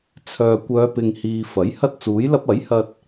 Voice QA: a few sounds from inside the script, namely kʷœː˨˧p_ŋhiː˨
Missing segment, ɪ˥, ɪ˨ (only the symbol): ɪ˨